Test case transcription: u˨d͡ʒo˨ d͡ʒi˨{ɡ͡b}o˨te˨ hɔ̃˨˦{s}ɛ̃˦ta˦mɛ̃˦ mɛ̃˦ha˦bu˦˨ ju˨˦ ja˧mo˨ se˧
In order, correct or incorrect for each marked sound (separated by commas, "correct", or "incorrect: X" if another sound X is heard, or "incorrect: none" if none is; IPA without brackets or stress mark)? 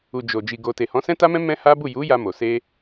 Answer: incorrect: ɡ, correct